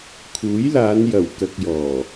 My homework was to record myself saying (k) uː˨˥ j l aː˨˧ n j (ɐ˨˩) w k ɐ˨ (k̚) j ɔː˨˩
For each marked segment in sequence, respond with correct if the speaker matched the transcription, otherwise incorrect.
incorrect: kʰ, correct, correct

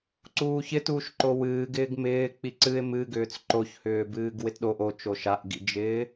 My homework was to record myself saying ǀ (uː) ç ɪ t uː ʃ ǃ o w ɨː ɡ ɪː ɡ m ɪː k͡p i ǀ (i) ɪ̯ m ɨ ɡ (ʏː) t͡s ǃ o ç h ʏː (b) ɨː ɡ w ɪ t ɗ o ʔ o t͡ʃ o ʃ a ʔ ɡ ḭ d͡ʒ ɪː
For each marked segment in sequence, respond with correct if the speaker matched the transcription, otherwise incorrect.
correct, incorrect: ɨ, correct, correct

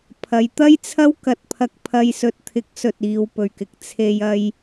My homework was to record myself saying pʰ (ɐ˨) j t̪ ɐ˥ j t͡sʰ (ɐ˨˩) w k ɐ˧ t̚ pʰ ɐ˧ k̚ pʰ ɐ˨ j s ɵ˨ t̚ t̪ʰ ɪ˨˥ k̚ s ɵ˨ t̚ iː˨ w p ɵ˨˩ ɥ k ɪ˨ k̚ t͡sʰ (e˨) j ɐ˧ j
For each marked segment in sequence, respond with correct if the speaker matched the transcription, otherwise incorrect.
incorrect: ɐ˨˧, incorrect: ɐ˥, correct

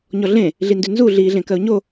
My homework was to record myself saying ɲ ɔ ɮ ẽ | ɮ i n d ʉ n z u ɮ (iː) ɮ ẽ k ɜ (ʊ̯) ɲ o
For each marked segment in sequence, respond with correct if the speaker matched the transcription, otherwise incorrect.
correct, correct

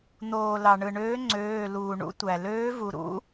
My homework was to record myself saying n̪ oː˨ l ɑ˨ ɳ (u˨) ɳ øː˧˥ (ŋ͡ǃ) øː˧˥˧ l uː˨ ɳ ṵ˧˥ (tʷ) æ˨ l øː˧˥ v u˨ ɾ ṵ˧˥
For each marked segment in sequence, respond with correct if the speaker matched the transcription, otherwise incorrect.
incorrect: ɯ˨, incorrect: ŋ͡ǀ, correct

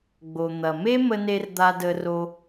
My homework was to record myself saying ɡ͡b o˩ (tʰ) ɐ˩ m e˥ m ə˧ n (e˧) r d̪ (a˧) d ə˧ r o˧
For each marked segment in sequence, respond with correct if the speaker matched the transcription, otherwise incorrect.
incorrect: n̪, correct, correct

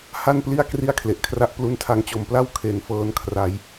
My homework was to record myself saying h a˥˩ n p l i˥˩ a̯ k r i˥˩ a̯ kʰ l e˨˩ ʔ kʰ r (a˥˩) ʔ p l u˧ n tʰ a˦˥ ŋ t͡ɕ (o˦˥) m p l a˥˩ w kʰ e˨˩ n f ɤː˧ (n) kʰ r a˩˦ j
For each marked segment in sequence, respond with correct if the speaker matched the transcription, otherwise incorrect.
correct, incorrect: o˨˩, correct

